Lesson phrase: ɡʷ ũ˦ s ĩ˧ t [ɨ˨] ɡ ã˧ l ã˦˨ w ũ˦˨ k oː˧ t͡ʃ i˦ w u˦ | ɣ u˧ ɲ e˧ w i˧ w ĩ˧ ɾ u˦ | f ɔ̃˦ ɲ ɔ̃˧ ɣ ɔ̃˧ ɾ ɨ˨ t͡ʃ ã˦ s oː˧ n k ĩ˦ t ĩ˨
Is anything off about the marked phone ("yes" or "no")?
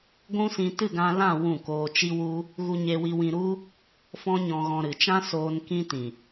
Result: yes